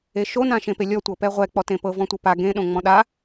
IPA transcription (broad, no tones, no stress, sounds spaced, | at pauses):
e ʃ o n ã ʃ ẽ p e lʲ ɔ tʷ ɤ p ɛ ʁʷ ɛ k͡p ɔ t ẽ p ɤ v ɔ̃ tʷ ɤ p a ɡ ẽ ɗ õ ŋ͡m ɔ̃ ɗ a